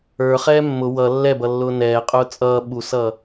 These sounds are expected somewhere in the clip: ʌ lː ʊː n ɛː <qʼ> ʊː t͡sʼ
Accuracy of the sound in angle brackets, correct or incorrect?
correct